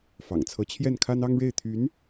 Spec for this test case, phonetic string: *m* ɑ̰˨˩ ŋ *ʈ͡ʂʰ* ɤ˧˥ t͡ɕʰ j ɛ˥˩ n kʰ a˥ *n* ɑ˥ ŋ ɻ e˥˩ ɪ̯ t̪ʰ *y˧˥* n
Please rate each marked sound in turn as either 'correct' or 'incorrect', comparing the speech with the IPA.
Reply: incorrect: f, incorrect: t͡sʰ, correct, correct

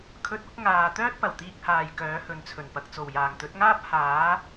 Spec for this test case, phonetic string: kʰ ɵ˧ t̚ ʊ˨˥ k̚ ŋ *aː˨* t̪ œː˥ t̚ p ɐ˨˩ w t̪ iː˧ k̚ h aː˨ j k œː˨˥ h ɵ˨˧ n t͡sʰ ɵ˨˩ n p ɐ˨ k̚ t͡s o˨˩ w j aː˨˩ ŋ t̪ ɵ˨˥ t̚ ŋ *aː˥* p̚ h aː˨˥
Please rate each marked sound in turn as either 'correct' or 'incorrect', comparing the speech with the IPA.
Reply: correct, correct

